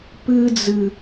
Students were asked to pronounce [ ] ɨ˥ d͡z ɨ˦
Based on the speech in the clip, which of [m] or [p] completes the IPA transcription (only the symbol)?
p